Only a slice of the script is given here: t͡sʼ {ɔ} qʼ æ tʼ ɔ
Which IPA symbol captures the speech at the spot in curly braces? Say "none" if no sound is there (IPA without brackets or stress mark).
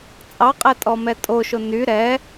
ɑ